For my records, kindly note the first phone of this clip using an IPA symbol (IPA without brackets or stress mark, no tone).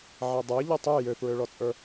ʕ